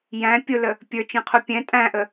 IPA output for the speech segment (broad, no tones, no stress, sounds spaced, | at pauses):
j æ̃ pʲ ʊ l ə | pʲ ə˞ t͡ʃ ĩ qʰ u pʲ ɛ̃ tʼ æ̃ ʔ ə